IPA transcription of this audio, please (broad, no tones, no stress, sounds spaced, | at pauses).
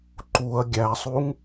ǃ u ɐ̯ ɡʲ æ sˤ u ŋ